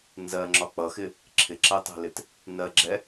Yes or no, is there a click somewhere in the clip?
yes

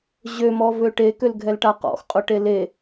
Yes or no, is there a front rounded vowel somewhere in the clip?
yes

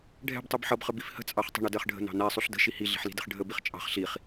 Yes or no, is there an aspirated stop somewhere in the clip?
no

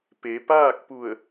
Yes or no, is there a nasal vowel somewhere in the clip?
no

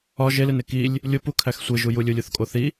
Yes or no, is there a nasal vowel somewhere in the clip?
no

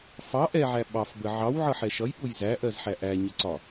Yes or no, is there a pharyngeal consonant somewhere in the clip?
yes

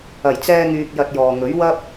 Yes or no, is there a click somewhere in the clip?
no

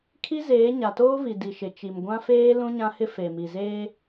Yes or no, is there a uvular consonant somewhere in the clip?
no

